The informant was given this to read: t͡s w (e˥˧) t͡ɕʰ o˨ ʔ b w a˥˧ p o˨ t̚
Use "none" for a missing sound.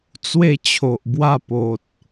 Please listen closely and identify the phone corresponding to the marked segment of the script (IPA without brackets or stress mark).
e˥˧